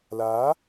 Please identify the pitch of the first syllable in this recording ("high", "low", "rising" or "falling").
rising